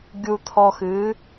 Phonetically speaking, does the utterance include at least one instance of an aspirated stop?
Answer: yes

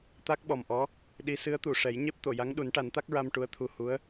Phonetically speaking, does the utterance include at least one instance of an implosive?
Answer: yes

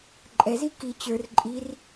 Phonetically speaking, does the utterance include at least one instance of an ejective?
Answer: yes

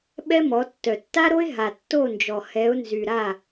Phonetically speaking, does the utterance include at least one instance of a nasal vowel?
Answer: no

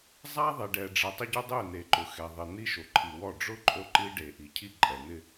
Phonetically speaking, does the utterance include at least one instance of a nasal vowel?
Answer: no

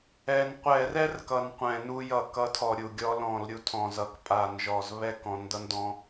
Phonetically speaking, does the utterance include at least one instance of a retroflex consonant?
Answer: no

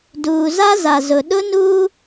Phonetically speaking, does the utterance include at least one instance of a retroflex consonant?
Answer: no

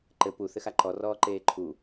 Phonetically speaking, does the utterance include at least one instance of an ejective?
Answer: no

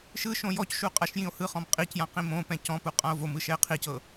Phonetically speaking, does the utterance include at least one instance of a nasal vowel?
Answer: yes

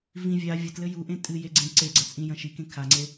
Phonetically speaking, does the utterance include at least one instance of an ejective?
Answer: yes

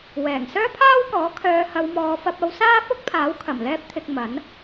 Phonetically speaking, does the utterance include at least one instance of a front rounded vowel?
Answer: yes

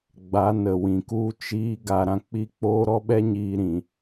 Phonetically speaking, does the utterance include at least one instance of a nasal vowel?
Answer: yes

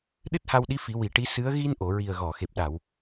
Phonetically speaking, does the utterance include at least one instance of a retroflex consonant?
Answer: yes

